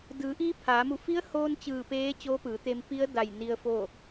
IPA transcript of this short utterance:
d ɯː˩˧ ʔ iː˧˥ pʰ aː˩˧ m u˧˩ f i˧˥ ə̯ h oː˧ n t͡ɕ ɯː˧˩ p eː˧˥ t͡ɕ oː˧˥ p ɯː˩˧ t̪ e˧ m p i˧˥ ə̯ d a˧˩ j n i˧ ə̯ f o˥˨

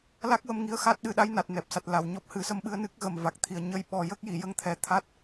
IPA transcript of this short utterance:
l a˦˥ k̚ w ə˧ m ŋ i˧ ə̯ x a˦˥ t̚ ɗ ɨ˧ ɗ a˧˥ j n a˨˩ t̚ n ɛ˨˩ p̚ s a˨˩ t̚ l a˨˩ w ɲ ɔ˦˥ p̚ h ɨ˨˩˦ s ə˧ m ɓ ɨ˧ ə̯ n ɨ˦˥ k̚ ɣ ə˨˩ m v a˨˩ k̚ t̪ʰ i˨˩ ə̯ ɲ ə˧˥ j ɓ ɔ˨˩ j ə˦˥ k̚ j i˨˩˨ j ə˧ ŋ t̪ʰ ɛ˨˩ t̪ʰ a˦˥ t̚

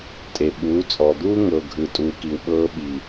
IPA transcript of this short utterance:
tʼ e˨ ɓ uː˨˦ t͡sʼ ɔ˨ d̪ uː˦ ŋ ɤ˨ ɡʱ ɯ˨ tʼ uː˨ k i˨ w ɓ ɤː˧ ɓ i˨

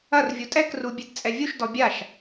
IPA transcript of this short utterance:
ɐ r vʲ u tʼ ɛ k r u bʲ e t t͡sʼ ɛ vʲ u ʃ d ɔ bʲ a ʃ

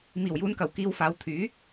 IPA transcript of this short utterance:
m iː˨˩ w j uː˨˧ n k ɐ˨˩ w k iː˧ w f aː˨˧ w t̪ʰ yː˨˥

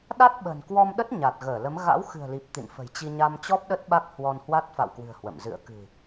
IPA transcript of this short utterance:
ɗ a˦˥ t̚ ɓ ə̤˨˩ n k w ɔ˧ m ɗ ə˦˥ t̚ ɲ a˨˩ t̚ ɣ əː˧˩ l ə˨˦ m ɣ a̰˧˥ w x ɨ̤˨˩ ə̯ l i˨˩ p̚ t̪ ḭ˧˨ n f ə̤˨˩ j t͡ɕ i˧ ɲ a˧ m t͡ɕ ɔ˦˥ p̚ ɗ ə˦˥ t̚ ɓ a˦˥ k̚ h w ɔ˧ n h w a˦˥ t̚ f a̰˧˨ w k w ɨ̤˨˩ ə̯ h w ə̰˧˨ m z ɨ̰˧˨ ə̯ k ɨ̤˨˩

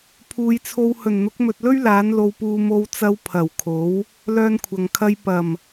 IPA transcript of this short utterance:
pʰ uː˨ j t͡sʰ o˧ w h ɵ˨˩ n n̪ ʊ˨˥ k̚ m ɵ˨ t̚ l ɵ˥ ɥ l aː˨˥ n l o˧ w p uː˧ m o˧ w t͡s ɐ˧ w pʰ ɐ˨˩ w kʰ o˨˥ w | l œː˥ n kʷʰ ɐ˨ ŋ kʰ ɐ˧ j p ɐ˨˩ m

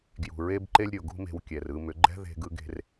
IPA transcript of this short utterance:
ɡ j ṳ˨ ɹ e˦ b ǃ e˦ lʲ ɾʲ o˨ ɡ ṳ˦ m e̤˧ w kʲ ɛ˨ r ɯ˧ m ʏ˨˦ ɡ͡ǃ ɛ̤˦ ð e̤˧ ɡ ɯ˧ ɡ e̤˧ r

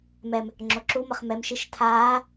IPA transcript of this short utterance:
m ɛ m | ŋ͡ǁ o ǁ u m ə χ m ɛ m ʃ i ʃ tʰ aː

